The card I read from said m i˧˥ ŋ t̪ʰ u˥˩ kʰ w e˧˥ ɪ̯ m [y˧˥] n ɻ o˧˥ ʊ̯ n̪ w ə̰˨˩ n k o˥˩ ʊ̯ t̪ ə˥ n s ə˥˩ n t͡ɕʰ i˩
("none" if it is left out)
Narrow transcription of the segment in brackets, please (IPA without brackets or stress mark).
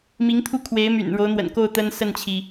y̰˨˩